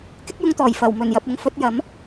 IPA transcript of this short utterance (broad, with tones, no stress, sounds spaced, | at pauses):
k ɪ˥ k̚ j ʊ˧ ŋ t̪ ɔː˨˩ j f ɐ˨˩ w m ɵ˨˩ n j ɐ˨ p̚ ʊ˨˧ ŋ f ɵ˨˥ t̚ j ɐ˨˥ m